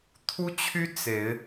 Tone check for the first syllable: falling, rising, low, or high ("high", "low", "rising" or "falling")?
high